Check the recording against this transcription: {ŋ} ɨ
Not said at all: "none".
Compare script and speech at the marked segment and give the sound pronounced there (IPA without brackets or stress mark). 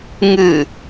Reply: ŋ